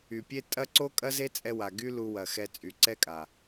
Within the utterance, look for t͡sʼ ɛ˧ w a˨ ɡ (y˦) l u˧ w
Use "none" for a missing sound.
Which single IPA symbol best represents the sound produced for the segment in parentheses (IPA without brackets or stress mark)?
y˦